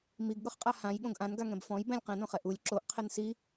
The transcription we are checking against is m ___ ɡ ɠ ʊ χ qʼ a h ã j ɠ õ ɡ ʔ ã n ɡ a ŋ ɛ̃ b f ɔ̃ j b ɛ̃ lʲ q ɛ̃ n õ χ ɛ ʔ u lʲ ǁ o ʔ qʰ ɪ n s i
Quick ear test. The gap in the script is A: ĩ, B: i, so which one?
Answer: B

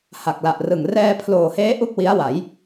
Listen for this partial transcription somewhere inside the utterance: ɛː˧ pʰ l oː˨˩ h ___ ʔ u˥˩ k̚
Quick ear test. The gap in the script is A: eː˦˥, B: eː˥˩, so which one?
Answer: A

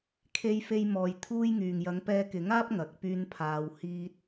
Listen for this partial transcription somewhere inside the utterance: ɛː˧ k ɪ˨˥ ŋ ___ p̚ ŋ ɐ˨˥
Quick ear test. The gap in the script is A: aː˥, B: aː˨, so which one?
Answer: A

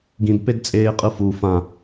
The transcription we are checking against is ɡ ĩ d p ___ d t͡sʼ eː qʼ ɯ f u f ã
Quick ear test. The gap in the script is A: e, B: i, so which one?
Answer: A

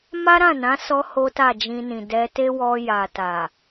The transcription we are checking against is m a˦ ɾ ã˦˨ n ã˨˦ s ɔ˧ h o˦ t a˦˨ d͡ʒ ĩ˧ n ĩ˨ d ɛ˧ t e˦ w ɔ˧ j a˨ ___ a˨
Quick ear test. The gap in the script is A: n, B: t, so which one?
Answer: B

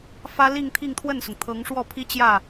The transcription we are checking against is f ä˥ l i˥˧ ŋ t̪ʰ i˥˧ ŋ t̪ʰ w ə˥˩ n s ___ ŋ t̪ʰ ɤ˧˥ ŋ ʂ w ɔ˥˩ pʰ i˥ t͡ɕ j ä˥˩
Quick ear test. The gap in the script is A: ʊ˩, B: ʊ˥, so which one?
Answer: A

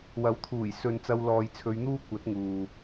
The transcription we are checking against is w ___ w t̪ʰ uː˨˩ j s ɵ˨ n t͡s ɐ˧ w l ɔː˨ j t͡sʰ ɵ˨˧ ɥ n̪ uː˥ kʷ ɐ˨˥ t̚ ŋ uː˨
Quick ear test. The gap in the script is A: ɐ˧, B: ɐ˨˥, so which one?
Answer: B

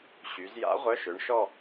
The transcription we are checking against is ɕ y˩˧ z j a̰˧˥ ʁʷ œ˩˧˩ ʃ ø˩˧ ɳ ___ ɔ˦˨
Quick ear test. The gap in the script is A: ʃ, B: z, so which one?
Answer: A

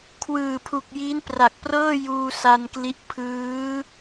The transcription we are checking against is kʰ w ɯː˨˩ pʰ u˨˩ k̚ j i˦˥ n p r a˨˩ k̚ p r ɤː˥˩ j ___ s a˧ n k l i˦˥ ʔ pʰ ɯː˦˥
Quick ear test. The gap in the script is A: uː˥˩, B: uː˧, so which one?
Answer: B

